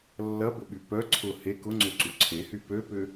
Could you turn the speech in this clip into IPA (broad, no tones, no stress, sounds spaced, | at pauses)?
lː ɐ b ʊ ɓ y p œ ǀʰ ʊ h e k ʊ ŋ͡ǀ ø ǀ u ǀʰ e h y p ø p ʏ